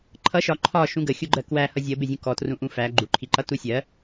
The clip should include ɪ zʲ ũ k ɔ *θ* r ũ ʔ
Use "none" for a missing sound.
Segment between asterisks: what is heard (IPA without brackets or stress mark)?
t